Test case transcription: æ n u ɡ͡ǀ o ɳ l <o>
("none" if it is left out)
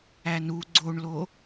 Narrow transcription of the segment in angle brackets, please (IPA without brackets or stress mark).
o